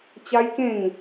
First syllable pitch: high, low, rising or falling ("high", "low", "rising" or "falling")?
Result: high